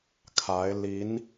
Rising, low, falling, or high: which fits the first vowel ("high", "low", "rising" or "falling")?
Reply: rising